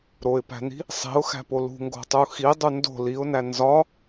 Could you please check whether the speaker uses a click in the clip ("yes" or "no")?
no